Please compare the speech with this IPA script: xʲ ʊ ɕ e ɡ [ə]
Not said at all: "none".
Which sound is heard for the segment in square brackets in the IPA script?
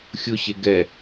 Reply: ɛ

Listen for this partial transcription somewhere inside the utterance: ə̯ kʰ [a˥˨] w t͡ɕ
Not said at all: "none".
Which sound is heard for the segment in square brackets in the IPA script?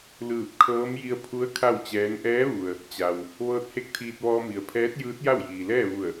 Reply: a˥˨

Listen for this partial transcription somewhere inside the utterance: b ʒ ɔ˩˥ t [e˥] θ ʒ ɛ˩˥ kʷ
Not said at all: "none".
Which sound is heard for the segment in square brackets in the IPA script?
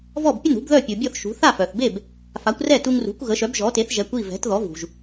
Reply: e˩˥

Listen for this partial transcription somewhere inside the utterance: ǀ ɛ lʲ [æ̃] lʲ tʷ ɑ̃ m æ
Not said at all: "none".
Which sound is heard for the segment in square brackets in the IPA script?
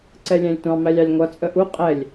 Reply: æ̃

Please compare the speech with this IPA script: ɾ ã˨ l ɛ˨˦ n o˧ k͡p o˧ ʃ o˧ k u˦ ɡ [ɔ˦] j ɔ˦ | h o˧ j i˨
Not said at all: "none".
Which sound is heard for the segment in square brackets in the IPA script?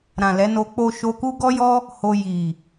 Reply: ɔ˦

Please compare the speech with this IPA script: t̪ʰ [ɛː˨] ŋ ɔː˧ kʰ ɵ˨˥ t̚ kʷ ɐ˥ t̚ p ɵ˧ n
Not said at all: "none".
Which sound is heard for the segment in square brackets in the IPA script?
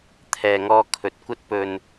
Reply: ɛː˨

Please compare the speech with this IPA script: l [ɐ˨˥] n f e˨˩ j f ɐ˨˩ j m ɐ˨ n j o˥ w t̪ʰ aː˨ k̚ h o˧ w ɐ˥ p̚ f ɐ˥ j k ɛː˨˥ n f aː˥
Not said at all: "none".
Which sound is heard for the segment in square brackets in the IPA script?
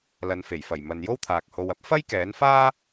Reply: ɐ˨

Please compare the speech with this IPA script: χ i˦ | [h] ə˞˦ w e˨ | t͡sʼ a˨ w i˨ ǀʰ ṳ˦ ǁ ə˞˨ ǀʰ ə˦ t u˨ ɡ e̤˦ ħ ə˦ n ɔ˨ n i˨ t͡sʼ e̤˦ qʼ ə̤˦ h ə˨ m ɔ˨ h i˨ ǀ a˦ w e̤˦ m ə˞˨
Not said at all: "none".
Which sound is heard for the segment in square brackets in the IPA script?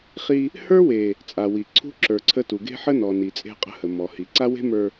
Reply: h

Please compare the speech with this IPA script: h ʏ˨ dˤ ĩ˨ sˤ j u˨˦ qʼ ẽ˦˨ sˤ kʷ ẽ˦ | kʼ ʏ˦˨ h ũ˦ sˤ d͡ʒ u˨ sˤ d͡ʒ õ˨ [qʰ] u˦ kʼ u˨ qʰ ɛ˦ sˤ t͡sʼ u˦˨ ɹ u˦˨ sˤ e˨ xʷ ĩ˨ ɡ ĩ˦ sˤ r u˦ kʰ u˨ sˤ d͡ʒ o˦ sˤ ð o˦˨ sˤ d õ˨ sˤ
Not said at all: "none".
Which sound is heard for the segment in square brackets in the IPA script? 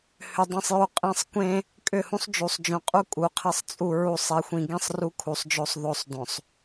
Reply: qʼ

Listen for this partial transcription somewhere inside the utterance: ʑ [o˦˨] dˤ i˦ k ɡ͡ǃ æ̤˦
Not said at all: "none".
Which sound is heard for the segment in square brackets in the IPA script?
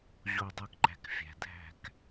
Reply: o˦˨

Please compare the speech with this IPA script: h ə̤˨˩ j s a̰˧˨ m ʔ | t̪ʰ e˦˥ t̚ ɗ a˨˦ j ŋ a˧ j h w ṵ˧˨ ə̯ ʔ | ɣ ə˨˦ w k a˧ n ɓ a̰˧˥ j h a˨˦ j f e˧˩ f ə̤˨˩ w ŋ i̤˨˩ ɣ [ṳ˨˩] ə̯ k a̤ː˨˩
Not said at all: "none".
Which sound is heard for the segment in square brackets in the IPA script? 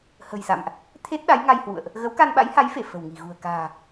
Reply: ṳ˨˩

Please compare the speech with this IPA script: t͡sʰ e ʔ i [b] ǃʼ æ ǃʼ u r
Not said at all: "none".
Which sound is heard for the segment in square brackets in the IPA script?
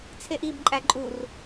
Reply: b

